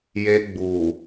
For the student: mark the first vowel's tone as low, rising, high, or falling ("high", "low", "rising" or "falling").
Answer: high